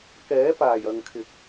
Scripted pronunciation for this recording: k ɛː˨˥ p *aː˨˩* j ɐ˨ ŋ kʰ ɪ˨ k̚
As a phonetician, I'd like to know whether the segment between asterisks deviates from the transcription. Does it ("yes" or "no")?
no